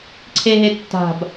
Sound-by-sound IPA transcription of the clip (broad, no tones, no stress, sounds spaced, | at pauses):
ǀʰ e ɦ e tː a̤ b